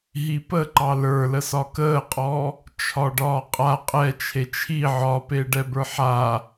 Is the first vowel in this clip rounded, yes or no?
no